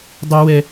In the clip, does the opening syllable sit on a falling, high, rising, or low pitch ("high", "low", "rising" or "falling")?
high